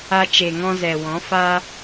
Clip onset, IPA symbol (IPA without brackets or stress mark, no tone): a